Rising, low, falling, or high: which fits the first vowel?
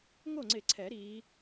falling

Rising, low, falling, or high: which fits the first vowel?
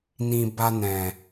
low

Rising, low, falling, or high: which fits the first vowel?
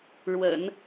low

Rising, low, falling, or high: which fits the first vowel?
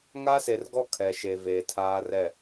high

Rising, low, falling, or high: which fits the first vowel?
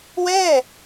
falling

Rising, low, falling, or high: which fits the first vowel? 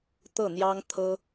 falling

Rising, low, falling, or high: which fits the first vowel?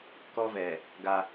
high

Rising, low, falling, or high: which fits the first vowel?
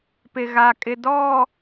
low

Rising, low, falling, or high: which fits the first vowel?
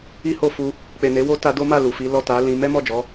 high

